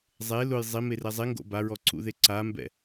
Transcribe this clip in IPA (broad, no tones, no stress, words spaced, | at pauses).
zˤe lʊj zˤimerɛ zˤiŋɡo̰ baɹɔǀṵðe ǀambɛ̰